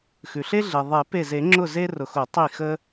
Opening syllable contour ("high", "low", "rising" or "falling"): low